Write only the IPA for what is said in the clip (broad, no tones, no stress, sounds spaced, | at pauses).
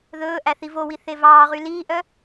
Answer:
ð ɵː ʔ æ θ i v o w i θ e v ɑː ʁ y l iː ʔ œ